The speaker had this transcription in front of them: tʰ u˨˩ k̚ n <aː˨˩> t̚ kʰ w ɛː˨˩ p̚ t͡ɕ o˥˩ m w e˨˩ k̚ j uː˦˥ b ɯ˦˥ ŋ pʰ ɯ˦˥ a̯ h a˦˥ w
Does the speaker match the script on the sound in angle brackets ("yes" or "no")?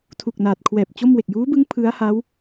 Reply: yes